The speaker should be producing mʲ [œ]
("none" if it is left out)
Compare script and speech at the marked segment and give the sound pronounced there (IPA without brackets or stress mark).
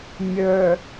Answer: œ